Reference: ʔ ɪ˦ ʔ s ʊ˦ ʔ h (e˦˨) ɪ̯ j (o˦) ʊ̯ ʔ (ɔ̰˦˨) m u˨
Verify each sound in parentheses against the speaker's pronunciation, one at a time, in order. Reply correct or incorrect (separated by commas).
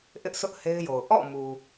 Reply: incorrect, incorrect, correct